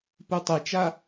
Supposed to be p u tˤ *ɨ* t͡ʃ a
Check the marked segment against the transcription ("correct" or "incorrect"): correct